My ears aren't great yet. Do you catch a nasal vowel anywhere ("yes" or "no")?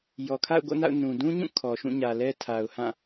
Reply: yes